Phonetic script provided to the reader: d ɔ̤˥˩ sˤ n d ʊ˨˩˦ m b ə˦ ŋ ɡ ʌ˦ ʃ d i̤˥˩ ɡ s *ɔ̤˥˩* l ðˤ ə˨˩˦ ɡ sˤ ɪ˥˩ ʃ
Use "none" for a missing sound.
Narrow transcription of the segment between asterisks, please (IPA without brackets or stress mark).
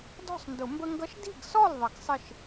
ɔ˥˩